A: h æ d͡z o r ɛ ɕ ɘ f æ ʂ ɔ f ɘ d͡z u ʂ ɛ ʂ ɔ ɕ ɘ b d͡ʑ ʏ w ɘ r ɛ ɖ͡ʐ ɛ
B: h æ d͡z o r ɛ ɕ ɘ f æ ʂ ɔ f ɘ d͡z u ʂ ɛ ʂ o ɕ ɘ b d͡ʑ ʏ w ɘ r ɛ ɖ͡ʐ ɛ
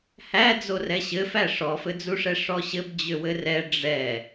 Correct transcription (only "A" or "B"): A